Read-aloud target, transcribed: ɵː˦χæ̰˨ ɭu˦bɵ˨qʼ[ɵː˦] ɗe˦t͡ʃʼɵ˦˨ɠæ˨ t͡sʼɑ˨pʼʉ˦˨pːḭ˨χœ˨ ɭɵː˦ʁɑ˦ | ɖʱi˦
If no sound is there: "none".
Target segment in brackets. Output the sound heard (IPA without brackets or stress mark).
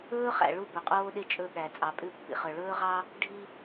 oː˦